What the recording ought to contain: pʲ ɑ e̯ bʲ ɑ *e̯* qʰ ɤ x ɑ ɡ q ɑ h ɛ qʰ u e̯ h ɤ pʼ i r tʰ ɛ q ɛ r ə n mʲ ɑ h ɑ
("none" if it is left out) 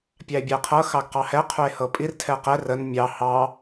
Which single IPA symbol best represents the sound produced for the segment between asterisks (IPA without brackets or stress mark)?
e̯